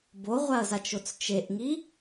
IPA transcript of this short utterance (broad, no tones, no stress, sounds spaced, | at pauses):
b o ʁʷ a ɐ̯ z a t͡ʃ o t͡s t͡ʃ e ʔ ŋ i